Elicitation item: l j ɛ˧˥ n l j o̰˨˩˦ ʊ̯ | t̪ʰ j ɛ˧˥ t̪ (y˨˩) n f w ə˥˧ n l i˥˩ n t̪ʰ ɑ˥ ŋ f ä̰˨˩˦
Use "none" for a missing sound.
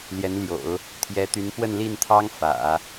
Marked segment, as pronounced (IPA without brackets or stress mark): y˧˥